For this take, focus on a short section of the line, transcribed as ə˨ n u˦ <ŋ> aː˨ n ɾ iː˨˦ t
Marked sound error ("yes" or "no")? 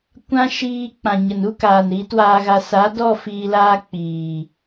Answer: yes